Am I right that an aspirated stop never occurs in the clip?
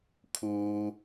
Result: no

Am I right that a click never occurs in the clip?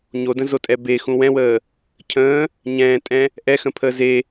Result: yes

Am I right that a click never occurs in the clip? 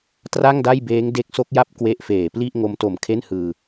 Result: yes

